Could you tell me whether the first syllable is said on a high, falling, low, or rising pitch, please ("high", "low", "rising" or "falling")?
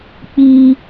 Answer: high